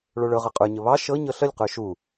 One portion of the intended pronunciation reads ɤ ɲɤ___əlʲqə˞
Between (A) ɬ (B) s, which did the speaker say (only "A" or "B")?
A